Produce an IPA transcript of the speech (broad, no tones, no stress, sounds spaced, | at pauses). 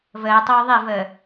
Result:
v əː tˤ oː ðˤ e v əː